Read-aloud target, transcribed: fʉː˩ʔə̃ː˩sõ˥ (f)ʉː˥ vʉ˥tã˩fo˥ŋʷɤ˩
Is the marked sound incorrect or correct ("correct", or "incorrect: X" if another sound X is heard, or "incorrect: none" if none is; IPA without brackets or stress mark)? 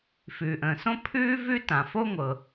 incorrect: pʰ